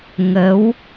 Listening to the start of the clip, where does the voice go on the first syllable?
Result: rising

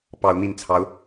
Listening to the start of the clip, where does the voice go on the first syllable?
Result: rising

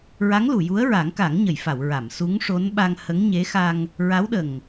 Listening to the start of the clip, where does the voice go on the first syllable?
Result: rising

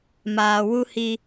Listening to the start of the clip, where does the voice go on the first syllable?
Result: low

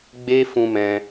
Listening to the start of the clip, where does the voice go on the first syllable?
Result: high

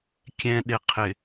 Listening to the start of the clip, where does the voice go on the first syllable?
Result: low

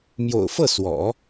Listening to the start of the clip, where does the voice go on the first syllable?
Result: low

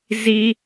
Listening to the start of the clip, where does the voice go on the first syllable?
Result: high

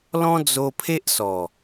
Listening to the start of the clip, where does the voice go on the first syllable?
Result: high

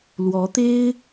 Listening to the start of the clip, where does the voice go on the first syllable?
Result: rising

